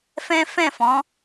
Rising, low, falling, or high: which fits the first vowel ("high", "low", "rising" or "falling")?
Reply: high